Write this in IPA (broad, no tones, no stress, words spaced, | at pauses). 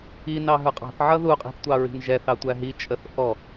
inɑɦə˞ qʼɑ̤θ ʕʌðuqʼi̤θ tʷɑɹi̤nʒɛ θɑtʷæɦi t͡ʃʼəθʔɔ